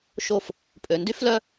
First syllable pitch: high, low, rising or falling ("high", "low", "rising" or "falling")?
falling